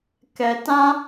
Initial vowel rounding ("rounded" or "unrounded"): unrounded